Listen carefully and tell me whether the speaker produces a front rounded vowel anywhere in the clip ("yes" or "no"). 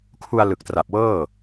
no